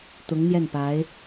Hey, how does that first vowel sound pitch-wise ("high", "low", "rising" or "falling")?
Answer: rising